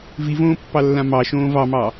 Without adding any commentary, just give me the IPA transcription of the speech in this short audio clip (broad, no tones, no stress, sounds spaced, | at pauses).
v i v õː pː ɑ lː ã m ɑ ʃ õː v ɑ m ɑ